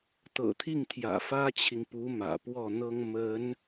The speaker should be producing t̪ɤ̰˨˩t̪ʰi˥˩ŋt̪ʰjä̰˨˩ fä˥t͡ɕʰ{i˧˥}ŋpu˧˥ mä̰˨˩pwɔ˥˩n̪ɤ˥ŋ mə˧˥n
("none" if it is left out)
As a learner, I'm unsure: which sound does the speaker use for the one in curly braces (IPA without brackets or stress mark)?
i˨